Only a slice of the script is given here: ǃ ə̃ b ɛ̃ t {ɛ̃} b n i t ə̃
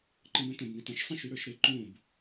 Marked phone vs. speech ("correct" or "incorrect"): incorrect